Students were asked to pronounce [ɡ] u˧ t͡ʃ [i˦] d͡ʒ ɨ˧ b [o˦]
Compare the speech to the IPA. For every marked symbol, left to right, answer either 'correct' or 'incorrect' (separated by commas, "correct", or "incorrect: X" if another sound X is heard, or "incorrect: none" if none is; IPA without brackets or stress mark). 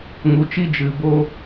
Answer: incorrect: ŋ, correct, correct